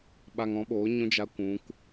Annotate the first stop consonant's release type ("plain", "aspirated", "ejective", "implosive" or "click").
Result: implosive